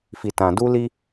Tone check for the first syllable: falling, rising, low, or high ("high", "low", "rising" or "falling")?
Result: low